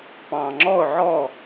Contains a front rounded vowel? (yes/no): no